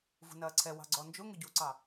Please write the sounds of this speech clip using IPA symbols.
v ṳ n ɐː ǀʰ ɛ w ɑ̤ ɡ͡ǀ ɔ n d͡ʒ ʊ ŋ ʊ ɟ u ǀ ɑ

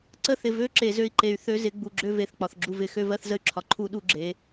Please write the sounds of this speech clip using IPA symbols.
ǀ ə˦ θ ɪ˨ v ø˦ ǁ e˨ z ø˦ i̯ ǃ e˨ y̯ θ ø˦ z ɪ˨˦ ɡ͡b u˨ ɡ͡ǁ ø˦ v e˨ θ k͡p ɒ˨ θ ɡ͡ǁ u˦ v ɪ˨˦ x ø˦ v ɜ˦ θ z ə˦ y̯ ǁʰ ɒ˨ ǃʰ u˦ ɗ u˦ ɡ͡ǁ e˨˦

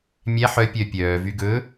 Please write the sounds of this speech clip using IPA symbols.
mʲ æ ħ œ pʲ œ pʲ œː v y ɡ ɵ

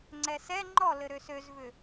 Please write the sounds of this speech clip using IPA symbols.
ŋ͡ǀ ɛ s ɛ ŋ͡ǃ ɔ l ɘ ɾ ø s ø z v ʏ

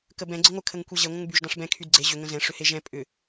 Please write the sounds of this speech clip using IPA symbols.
k ə b ɛ̃ ɡ͡ǀ ə ŋʷ ə kʰ ə ŋ kʷ ɛ ʑ e ŋʷ ə̃ ŋ b y ʒ d ɑ̃ ʂ b ɛ̃ kʰ y d ɡ͡ǀ e ʑ ʏ ŋ ə̃ z ɛ̃ ʂ ʏ h e ʒ ɛ̃ pʼ ʏ

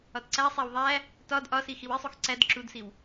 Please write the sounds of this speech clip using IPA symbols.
ɒ t ǀ æ sˤ æ w ðˤ æ | t ɒ d ʔ ɒ s i x i w i sˤ u x ǀ æ d ǁ u d s i w

